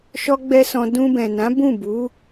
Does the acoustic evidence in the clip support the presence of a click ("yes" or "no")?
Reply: no